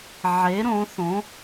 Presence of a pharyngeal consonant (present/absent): present